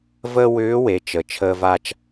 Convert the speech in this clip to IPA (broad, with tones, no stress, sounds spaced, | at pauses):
v əː˥ w ʏː˧˥ w e˩˧ t͡ʃ ə˩ t͡ʃʰ əː˧ v a˧ t͡ʃ